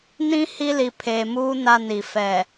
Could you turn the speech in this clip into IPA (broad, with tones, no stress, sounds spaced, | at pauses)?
n ĩ˦ h i˦ l i˨ pʰ eː˨ m uː˦ n a˦ n i˨ f ɛ˨